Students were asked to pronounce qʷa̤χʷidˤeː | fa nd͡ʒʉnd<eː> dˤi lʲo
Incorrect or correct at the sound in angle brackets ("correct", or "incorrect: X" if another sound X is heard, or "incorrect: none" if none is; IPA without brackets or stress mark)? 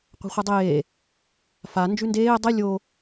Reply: correct